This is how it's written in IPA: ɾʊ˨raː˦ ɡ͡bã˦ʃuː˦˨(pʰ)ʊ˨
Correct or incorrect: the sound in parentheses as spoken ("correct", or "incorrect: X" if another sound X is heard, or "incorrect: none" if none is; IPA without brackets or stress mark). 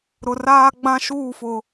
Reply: incorrect: f